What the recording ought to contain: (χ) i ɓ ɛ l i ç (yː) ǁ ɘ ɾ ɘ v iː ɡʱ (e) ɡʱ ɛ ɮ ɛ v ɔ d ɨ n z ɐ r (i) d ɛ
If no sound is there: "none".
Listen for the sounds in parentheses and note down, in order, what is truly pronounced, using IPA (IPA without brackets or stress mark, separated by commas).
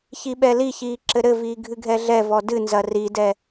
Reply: ç, iː, ɨ, i